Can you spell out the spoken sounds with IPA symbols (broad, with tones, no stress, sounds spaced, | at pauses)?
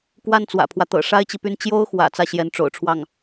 k w a˥˩ n t͡s w ä̰˨˩ pʰ w ä˦ t̪ ɤ̰˨˩ ʂ a˥ ɪ̯ t͡ɕ i˨ p y˥˩ n t͡ɕ j o˥ ʊ̯ x w ä̰˨˩ t͡s ä˥˩ ɕ j ɛ˧˥ n ʈ͡ʂ o̰˨˩ ʊ̯ ʈ͡ʂʰ w ɑ˥˩ ŋ